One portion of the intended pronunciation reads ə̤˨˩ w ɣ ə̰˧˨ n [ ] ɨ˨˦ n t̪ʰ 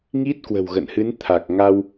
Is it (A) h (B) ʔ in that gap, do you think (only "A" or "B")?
A